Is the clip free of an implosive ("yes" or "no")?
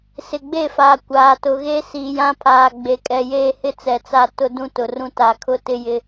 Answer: yes